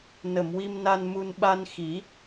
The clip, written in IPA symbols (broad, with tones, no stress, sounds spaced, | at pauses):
n ə˨˩˨ m w i˧ m n a˧ n m u˧ n ɓ a˧ n x i˨˩˦